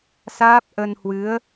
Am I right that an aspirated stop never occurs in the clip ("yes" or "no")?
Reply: yes